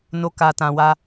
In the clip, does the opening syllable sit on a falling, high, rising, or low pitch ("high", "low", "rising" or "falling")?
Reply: low